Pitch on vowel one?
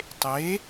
rising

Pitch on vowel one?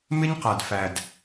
high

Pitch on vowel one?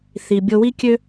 low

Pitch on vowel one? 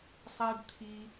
high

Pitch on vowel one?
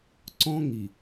high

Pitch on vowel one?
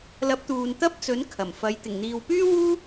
rising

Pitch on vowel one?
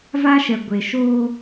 high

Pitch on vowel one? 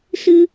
high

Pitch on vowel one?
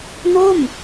falling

